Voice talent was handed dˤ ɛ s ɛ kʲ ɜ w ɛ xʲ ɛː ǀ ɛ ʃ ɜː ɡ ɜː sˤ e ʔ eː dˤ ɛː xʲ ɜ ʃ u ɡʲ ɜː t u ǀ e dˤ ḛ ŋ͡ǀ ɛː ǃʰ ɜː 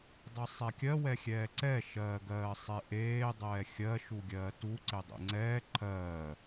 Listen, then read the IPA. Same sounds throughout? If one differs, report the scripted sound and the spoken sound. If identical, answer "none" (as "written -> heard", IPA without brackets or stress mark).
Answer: s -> sˤ